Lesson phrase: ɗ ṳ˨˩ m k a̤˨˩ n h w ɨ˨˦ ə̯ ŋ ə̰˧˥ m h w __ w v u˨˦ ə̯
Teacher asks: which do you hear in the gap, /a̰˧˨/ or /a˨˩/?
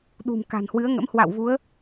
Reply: a̰˧˨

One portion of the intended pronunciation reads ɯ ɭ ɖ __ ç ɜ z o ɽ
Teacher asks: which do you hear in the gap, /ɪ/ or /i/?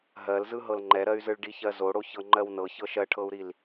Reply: i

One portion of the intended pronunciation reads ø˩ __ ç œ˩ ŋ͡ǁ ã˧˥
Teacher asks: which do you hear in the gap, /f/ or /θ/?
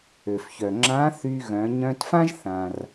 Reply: f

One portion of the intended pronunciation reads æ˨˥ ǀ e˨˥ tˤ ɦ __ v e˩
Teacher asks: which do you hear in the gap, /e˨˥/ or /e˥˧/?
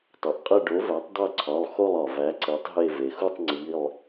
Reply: e˥˧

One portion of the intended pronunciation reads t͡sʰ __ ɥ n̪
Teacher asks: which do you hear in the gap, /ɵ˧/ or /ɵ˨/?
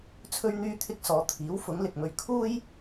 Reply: ɵ˧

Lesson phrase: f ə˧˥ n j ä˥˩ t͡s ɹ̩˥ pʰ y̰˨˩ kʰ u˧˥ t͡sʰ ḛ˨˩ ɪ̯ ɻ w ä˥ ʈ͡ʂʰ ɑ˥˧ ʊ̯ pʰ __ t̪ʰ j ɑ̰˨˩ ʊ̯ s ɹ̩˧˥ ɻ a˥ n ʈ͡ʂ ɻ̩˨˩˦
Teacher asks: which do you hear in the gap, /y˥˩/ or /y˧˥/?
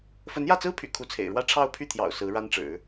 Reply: y˥˩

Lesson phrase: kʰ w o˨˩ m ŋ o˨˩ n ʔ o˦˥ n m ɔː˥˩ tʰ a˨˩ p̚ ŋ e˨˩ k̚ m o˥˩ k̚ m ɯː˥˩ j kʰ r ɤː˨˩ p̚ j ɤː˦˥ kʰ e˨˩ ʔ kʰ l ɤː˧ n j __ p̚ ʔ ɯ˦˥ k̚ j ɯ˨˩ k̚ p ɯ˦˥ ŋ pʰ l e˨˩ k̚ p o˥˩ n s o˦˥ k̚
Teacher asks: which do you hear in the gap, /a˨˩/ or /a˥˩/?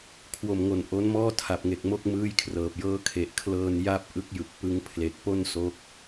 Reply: a˥˩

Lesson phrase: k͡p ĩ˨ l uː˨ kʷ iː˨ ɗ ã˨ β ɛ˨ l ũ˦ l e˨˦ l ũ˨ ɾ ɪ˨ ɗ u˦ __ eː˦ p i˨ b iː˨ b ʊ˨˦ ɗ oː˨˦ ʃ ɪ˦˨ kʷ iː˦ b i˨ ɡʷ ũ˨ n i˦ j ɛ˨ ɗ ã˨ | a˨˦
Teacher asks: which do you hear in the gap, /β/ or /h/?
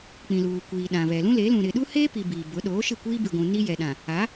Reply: h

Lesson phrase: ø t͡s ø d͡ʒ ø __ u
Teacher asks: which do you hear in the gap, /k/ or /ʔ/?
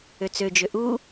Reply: ʔ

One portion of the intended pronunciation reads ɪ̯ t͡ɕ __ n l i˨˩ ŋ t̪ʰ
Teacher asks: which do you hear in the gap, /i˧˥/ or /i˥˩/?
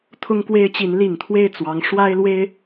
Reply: i˧˥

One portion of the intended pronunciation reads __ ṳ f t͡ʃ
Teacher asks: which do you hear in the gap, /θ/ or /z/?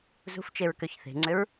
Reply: z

